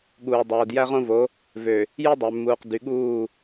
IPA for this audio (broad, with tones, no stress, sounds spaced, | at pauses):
ɠ uː˨ dˤ oː˨ d j æ˦ ʁ õ˦ v o˨˦ | v ø˨ | j e˦ dˤ ø˨ mː uː˨ q d y˨ ɠ uː˦˨